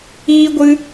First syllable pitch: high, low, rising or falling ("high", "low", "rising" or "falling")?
high